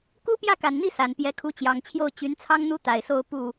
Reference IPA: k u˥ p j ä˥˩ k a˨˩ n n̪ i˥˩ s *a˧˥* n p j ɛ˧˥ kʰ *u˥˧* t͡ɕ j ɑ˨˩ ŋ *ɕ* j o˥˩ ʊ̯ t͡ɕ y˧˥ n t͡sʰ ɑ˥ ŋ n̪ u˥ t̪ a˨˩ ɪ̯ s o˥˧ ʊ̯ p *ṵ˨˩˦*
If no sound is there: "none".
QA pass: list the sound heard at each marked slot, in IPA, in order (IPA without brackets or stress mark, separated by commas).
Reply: a˨˩, u˧˥, t͡ɕʰ, u˥˩